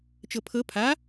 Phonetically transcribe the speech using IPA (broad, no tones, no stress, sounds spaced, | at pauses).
t͡ʃ ɤ pʰ ɤ pʰ a